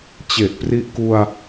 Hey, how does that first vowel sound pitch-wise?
low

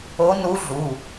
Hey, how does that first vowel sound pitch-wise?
rising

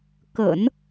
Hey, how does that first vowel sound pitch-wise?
low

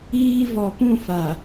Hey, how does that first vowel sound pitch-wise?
high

